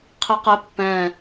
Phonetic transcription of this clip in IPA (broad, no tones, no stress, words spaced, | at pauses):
qʰiqɛ pːɛ̃